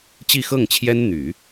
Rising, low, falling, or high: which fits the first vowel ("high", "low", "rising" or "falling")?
falling